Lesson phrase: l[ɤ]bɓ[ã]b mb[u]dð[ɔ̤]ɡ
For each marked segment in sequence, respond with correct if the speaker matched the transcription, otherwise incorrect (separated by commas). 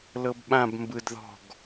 correct, correct, incorrect, correct